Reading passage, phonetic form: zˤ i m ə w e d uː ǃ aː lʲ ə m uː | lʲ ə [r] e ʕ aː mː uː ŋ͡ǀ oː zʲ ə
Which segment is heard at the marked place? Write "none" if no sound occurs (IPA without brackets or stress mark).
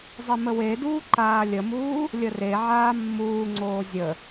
r